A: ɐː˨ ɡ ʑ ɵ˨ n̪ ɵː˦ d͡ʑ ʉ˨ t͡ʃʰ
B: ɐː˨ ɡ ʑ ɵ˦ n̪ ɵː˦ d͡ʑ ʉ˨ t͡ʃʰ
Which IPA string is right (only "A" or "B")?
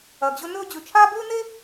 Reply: B